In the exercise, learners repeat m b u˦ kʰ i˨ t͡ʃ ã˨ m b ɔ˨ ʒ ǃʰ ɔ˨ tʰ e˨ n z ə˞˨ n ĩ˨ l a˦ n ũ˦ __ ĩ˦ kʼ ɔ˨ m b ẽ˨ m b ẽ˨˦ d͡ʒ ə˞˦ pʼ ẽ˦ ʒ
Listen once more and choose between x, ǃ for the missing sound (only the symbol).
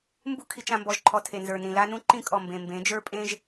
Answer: ǃ